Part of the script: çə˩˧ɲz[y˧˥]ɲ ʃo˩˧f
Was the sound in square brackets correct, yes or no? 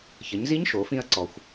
no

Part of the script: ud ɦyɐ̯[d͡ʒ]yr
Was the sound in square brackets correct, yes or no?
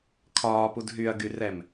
no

